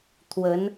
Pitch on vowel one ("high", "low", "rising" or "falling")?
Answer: rising